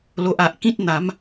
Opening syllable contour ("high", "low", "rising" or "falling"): low